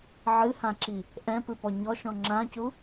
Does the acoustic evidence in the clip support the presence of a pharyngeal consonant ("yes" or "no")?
yes